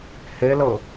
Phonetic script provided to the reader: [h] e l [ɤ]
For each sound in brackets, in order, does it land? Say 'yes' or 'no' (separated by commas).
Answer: yes, yes